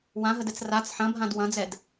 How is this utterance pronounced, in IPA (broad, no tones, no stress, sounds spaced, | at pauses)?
w ã ɦ ə d ɛ t͡s r a t͡s ħ ɐ̃ bʱ ã d w ɐ̃ d͡z ɛ d